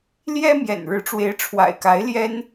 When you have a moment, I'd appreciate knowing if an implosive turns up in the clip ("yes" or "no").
no